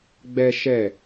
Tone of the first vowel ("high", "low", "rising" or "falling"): high